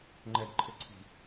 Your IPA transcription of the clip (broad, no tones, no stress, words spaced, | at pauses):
ŋ͡ǃɛdǃʰɘǀʰi̤